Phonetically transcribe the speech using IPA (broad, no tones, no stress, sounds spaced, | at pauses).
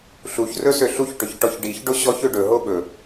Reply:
ɬ u ç r ɵ s ø ɬ u ç ʈ ɵ ç ʈ ɔ ç ɖ i ç ɖ o ɕ ɔ ç ø ɖ ɵ ɦ o ɓ ɵ